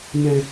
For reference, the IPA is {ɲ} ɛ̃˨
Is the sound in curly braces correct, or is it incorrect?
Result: correct